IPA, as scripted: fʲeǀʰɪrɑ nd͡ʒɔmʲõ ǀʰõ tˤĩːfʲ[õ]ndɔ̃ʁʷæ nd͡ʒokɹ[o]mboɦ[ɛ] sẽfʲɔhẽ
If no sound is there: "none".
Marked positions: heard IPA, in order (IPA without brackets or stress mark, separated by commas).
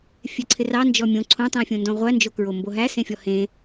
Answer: õ, o, æ